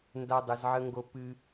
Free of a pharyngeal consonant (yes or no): no